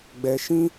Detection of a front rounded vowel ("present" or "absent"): absent